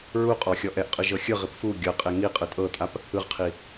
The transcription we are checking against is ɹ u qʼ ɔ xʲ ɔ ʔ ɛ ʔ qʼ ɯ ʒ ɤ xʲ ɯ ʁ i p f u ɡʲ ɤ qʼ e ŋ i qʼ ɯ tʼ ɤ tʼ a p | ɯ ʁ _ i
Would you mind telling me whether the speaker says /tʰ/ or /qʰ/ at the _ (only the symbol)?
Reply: qʰ